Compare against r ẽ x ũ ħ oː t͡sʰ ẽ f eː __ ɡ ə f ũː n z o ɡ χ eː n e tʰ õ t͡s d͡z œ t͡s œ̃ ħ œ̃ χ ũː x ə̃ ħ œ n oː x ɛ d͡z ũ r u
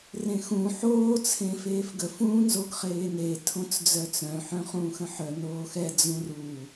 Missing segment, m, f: f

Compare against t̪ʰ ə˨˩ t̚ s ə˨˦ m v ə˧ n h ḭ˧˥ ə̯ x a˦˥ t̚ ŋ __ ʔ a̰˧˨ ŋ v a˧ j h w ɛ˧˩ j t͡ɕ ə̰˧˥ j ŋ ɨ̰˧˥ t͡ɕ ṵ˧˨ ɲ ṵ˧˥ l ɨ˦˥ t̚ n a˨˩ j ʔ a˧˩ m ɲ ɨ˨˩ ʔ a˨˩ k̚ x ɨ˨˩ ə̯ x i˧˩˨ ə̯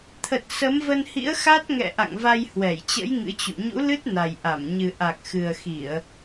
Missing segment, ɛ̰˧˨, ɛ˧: ɛ̰˧˨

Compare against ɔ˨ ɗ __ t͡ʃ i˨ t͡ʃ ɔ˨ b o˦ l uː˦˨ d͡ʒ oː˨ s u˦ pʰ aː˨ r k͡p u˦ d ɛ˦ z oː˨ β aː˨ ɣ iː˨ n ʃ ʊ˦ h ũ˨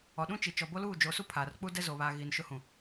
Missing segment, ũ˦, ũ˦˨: ũ˦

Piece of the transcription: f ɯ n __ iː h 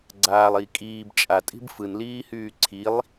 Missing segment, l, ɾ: l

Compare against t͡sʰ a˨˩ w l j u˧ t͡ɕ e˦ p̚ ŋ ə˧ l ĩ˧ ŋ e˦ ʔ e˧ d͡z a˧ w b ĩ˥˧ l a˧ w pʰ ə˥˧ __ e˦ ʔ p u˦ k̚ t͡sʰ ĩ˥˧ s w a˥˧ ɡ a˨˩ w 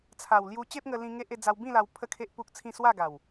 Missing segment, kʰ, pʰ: kʰ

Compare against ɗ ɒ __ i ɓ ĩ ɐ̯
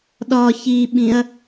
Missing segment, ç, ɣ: ç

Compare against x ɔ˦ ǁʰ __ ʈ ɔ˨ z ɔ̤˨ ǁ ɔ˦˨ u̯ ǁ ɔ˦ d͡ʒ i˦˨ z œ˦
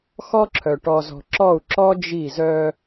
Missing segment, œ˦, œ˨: œ˨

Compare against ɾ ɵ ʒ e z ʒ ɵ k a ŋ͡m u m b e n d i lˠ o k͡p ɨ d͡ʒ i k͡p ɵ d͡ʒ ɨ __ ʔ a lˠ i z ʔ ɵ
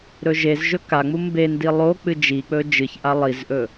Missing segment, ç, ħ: ç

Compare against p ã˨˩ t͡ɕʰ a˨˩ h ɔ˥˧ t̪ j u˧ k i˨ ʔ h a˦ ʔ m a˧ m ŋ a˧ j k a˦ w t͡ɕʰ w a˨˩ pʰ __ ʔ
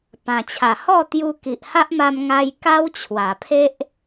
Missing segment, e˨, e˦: e˦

